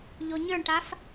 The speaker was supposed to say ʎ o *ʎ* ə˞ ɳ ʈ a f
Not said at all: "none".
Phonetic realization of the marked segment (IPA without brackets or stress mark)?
ɲ